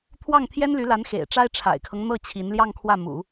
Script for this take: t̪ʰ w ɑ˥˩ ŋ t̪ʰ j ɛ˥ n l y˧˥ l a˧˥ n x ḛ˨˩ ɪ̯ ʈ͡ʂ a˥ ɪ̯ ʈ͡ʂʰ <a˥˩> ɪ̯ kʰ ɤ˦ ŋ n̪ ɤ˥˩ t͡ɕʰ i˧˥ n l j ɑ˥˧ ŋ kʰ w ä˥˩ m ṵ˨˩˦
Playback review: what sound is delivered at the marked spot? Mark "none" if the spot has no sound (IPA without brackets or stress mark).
a̰˨˩